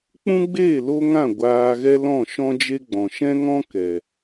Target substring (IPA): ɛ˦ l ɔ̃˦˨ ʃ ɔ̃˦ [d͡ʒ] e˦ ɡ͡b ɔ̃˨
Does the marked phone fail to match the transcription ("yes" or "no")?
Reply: no